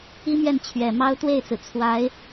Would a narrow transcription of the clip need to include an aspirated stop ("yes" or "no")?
yes